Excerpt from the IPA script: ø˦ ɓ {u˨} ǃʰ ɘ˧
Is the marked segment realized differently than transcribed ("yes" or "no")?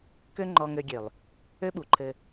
no